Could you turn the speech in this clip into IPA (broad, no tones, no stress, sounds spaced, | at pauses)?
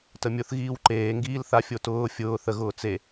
t ə mʲ ʊ θ ɣ iː w ǃ eː ŋ ɡ iː l θ a fʲ o t ʊː fʲ ʊː θ ə ɣ ʊː t͡s e